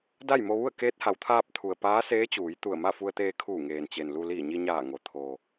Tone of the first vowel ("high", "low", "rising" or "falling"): falling